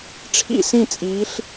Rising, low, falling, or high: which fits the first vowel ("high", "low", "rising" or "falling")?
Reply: falling